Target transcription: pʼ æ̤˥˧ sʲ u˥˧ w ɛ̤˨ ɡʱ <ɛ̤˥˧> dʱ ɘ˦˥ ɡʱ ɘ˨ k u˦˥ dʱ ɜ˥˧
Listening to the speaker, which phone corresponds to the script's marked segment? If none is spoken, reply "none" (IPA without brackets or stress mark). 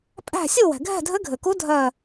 ɛ̤˥˧